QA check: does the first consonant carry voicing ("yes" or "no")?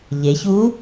yes